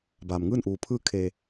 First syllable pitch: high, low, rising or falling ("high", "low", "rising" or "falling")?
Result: low